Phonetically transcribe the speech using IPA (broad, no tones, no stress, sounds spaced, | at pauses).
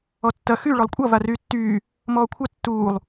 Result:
ɔ tː ɐ x y ɭ ɔ lˠ kʷʼ ɐ v a r yː tː yː | m ɔː kʷʰ ɐ tː uː lˠ